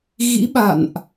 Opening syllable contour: rising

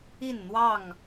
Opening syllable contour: falling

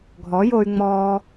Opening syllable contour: rising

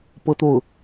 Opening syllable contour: high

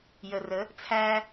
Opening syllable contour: low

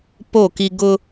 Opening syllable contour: falling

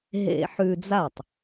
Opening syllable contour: low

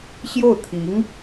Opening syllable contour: falling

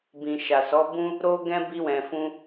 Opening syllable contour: low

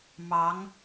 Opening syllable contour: rising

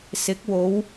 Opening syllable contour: rising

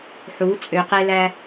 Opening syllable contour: rising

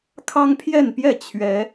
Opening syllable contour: high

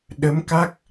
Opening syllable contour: rising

